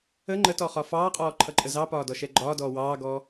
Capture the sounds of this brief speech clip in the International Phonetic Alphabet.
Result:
ə ŋ͡ǃ ə t ɔ χ ɒ f ɑː qʼ ɔː ǃʰ ʌ ǃʼ ə z ɑ p ɒː d ɔ ʃ ɛ ɡ͡ǃ ɒː d ɔː w ɑː ɡ ɔː

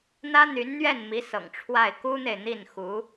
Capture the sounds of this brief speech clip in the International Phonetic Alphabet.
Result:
n̪ ä˥ n̪ y˧˥ n n̪ ɥ ɛ˥˩ n m i˧˥ s ɤ̰˨˩ ŋ ʈ͡ʂʰ w a˥˩ ɪ̯ k u˥ n̪ e˨ ɪ̯ n̪ i˥˩ n x u˧˥

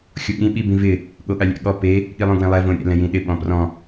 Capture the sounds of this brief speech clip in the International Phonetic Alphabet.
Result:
xʲ o ɠ ĩ ɓ i b ĩ v ɪ | ɠ o ɠ a lʲ ɛ̰ ɠ ɔ p e | ɠ i lˠ õ ɡ w ẽ lˠ ɛ v õ ɾʲ ɛ̰ l ɛ̃ j ĩ ɗ ɪ ɓ ɔ̃ p r ɔ̃

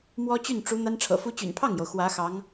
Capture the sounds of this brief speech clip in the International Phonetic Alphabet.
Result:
m w ɔ˥ t͡ɕ y˥˩ n ʈ͡ʂ u˧˥ n̪ a˥ n ʈ͡ʂʰ ɤ̰˨˩ f u˥ t͡ɕ y̰˨˩ n pʰ ɑ˥˩ ŋ j o˩ ʊ̯ x w ä˧˥ x ɑ˧˥ ŋ

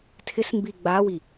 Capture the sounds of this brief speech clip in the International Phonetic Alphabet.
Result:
tʰ ɪ s m b i ɡ͡b a w i

